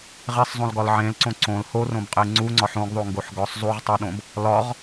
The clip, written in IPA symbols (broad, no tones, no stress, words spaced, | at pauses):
ʁesˤzˤõlɡɒl ʕẽlǀõ ǀõl horõbqʼe ŋ͡ǀuŋ͡ǀɒħ õɡðˤoŋɡoħ ɡɒsˤ zˤuʁtˤuɗõb | lɒʁ